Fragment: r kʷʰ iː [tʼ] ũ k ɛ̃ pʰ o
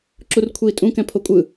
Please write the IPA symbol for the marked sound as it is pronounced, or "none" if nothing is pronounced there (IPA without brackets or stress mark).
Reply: tʼ